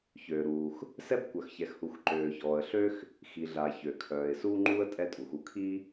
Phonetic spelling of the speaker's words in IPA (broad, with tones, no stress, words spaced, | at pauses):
çøː˩ɾuː˩x | sɛ˥bkʷœ˩xçɛ˩xhu˩x ǃøː˩çɔː˩ə̯ɬø˥x | xi˩ɮa˩ çø˩kʰœː˩ɪ̯ suː˥ŋ͡ǃuː˥ə̯ tʼɛ˥tʼu˩xu˥ kʰi˥